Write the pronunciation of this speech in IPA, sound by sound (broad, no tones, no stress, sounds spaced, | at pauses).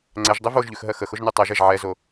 ŋ͡ǀ ɛ ʒ dˤ e v o ʒ ʎ ʉ x ɦ ɜ x ə x ʊ ʒ n ʉ tˤ ɜ ʒ ɛ ʒ ʕ ɛ z o